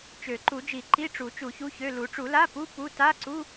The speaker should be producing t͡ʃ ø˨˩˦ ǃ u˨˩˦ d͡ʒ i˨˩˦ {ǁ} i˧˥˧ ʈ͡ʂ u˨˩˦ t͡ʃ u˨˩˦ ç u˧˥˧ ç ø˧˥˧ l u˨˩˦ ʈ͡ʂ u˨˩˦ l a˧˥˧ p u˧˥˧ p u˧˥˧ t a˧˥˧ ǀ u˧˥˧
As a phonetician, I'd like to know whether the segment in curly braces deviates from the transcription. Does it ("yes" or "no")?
yes